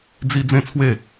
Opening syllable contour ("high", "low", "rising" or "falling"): high